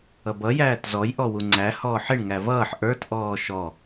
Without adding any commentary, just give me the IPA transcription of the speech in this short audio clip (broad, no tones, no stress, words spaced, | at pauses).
ʌbʌ jæːtzɔj ʔɔwuŋ͡ǀæ hɔːħɪɳ ŋævʌːħ ʔə˞t ʔɔːʃɔ